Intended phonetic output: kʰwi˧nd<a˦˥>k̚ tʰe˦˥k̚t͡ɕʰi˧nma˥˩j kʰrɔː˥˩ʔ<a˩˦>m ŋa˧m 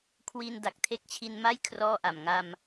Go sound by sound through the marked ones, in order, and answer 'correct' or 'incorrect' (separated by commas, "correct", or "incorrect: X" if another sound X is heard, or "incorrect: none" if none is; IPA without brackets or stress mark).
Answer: incorrect: a˨˩, incorrect: a˨˩